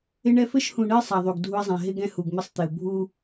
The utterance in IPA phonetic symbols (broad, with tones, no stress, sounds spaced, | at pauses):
ɪ˦ ɳ ɛ˦ f ɘ˦ ʃ h ũ˨ ɳ ɘ˦ i̯ sˤ a˨ ðˤ u˨ ɡ dʱ u˦ i̯ zˤ ɛ̃˨ ɦ ɪ˦ ɡ ɛ̃˦ h u˨ ɡ m ɪ˦ sˤ t̪ ɪ˨ u̯ bʱ u˦